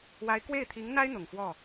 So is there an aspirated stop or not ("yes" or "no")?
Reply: yes